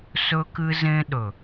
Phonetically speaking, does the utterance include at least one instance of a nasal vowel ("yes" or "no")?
yes